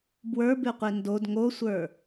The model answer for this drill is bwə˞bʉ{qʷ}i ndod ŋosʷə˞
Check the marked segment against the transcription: correct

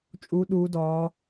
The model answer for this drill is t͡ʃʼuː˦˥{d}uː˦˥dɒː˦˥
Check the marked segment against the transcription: incorrect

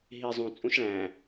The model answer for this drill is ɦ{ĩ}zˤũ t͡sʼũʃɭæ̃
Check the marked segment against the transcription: incorrect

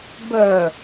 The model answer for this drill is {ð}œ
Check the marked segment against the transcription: incorrect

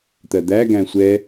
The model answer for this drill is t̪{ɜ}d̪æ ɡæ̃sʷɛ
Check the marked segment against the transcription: correct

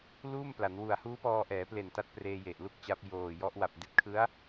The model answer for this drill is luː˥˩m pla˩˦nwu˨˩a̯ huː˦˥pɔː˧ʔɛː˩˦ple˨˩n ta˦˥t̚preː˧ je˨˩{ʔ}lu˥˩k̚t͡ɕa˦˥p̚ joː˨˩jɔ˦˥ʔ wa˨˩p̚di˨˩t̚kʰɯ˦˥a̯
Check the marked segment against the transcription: correct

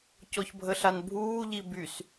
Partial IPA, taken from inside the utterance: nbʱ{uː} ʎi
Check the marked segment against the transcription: correct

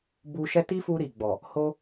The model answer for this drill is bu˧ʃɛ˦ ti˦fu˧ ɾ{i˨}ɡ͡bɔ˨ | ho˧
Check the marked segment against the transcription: correct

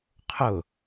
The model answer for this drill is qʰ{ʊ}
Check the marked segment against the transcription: correct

